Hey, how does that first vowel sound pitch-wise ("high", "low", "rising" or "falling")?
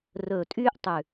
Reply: low